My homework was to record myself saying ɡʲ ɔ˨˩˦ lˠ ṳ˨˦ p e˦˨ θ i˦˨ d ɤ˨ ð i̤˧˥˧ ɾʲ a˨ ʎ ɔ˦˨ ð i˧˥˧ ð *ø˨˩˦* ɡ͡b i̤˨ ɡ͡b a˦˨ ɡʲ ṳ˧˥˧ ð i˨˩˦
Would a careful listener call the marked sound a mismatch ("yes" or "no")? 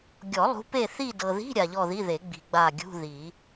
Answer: yes